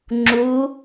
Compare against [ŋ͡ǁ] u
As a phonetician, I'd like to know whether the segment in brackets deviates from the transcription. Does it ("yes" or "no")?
no